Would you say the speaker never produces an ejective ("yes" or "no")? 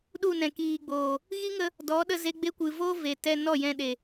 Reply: yes